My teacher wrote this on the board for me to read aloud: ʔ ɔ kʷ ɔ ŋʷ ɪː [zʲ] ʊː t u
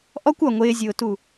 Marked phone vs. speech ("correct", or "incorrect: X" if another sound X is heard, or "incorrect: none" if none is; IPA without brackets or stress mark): correct